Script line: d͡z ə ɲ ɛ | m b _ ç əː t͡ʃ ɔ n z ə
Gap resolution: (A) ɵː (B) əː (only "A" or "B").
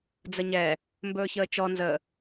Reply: A